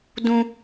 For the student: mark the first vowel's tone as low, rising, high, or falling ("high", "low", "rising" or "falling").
high